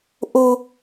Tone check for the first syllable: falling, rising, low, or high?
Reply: high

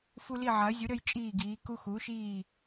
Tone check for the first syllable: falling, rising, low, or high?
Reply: high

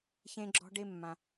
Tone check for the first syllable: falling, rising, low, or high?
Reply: high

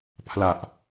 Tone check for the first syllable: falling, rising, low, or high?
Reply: low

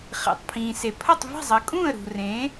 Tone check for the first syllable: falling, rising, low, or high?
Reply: low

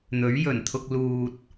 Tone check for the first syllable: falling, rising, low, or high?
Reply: rising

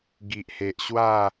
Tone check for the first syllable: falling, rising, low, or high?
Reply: low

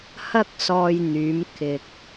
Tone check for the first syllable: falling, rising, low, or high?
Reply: high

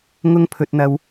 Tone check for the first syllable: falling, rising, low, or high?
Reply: high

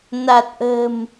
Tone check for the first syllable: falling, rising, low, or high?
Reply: low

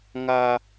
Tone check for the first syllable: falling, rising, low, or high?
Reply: low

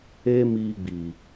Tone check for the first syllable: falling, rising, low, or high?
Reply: high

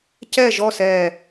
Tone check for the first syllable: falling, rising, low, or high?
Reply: falling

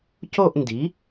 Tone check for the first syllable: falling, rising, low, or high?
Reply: falling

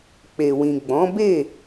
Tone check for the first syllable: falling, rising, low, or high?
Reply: low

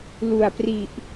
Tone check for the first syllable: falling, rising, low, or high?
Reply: low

